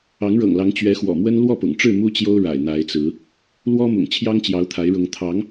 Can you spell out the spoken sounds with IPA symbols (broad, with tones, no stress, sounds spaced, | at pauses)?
ɑ˨˦ ŋ ɻ ɤ̰˨˩ ŋ l ɑ˨˦ ŋ t͡ɕ ɥ ɛ˨˦ x w ɔ̰˨˩ m w ə˦ n l w ɔ˥˨ p ʊ̰˨˩ ŋ ʈ͡ʂ ɻ̩˥˨ m u˦ t͡ɕ j o˦ ʊ̯ ɻ a̰˨˩ ɪ̯ n̪ a˨˦ ɪ̯ t͡s ɹ̩˨˦ | l w ɔ˦ m ʊ̰˨˩ ŋ t͡ɕʰ j ɑ˦ ŋ t͡ɕ j ɑ˨˦ ʊ̯ t̪ʰ a˨˦ ɪ̯ ɻ ʊ˨˦ ŋ t̪ʰ ɑ˨˦ ŋ